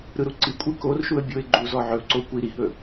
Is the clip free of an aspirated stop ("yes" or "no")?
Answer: yes